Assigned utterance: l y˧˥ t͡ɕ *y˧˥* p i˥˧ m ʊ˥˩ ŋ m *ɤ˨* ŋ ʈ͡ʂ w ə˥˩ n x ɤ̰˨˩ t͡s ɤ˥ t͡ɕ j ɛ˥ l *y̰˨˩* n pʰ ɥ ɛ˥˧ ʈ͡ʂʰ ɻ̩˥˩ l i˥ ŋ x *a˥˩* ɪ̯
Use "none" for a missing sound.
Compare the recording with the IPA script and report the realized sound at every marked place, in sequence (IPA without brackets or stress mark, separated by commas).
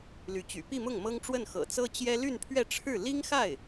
y̰˨˩, ɤ˥, y˥˧, a˥˩